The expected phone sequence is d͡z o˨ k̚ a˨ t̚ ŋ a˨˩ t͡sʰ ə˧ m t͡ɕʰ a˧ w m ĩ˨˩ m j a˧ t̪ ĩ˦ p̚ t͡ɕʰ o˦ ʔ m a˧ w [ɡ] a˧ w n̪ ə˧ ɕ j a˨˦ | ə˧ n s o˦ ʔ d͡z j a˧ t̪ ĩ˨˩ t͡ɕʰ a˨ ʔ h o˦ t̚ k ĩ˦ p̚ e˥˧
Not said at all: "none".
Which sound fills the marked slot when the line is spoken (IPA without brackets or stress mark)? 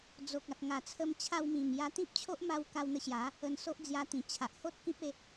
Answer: k